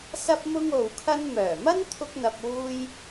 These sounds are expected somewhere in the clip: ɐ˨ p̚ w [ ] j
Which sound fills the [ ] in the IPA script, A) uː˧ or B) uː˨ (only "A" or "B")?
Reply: A